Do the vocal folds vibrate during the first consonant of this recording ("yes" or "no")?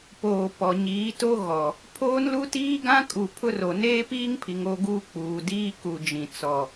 no